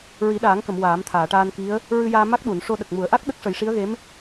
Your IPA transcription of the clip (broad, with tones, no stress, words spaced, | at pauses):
ɹi˨˩˦ɗaː˨˩˦ŋkə˨˩˨m waː˨˩˦mt̪ʰaː˨˩˨ʈaː˧n ki˧˥ə̯ | ɹɨ˧jaː˧ ma˦˥k̚ɗu˨˩˨n ʂo˧ɗə˨˩k̚ mu˨˩˨ə̯ʔa˦˥k̚ ɗə˦˥k̚ʂə˨˩˦jʂi˧˥ə̯ɣe˧˥m